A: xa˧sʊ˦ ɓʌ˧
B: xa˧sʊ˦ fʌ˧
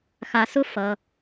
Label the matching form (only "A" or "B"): B